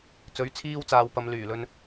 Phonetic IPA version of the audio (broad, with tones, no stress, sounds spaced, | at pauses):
t͡s ɵ˨˥ ɥ t͡sʰ iː˧ w t͡s aː˨ w p ɐ˨˧ m l yː˨˩ l ɵ˧ n